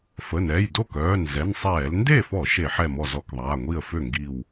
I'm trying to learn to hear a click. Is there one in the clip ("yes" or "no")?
no